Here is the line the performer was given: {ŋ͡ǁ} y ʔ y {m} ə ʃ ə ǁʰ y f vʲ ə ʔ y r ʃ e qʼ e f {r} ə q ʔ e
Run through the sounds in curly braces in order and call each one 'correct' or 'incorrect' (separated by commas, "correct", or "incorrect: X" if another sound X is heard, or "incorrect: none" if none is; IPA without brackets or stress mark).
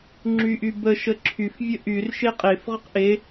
correct, incorrect: b, incorrect: ʁ